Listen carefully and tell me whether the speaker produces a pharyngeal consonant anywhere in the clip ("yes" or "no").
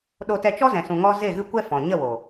no